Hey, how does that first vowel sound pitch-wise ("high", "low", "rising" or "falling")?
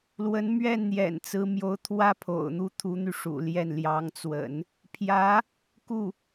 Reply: rising